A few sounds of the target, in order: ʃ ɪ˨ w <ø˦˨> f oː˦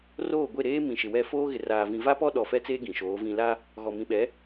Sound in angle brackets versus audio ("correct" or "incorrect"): incorrect